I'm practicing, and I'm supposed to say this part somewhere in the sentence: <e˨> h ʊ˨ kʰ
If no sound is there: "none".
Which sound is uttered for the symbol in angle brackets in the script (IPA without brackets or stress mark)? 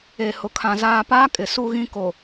e˨